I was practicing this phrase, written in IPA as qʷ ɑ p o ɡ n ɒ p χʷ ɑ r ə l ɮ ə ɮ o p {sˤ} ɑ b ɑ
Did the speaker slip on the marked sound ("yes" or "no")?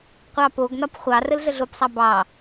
no